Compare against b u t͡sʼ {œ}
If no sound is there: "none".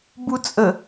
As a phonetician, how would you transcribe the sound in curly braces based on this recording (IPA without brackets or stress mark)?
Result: ə